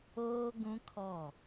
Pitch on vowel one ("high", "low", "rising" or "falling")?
high